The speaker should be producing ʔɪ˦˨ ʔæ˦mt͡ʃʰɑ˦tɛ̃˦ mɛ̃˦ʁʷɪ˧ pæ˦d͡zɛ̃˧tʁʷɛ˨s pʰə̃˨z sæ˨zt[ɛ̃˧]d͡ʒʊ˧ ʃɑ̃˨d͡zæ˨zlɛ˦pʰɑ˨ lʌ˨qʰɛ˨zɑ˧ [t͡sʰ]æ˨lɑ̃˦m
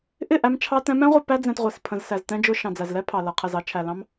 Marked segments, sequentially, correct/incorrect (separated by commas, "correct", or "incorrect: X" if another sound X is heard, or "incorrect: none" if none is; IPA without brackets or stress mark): correct, incorrect: t͡ʃʰ